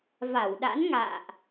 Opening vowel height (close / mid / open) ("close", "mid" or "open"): open